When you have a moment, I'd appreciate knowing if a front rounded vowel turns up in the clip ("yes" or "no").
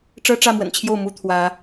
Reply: no